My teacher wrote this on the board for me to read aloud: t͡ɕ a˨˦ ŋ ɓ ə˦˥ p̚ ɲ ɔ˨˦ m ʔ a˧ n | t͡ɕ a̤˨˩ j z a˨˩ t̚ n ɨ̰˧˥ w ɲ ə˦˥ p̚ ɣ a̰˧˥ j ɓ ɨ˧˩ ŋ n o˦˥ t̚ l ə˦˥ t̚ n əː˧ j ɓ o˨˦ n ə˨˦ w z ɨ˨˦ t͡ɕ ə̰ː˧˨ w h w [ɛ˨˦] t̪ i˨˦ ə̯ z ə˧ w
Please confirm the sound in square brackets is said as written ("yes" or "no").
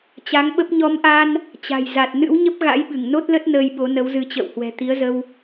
no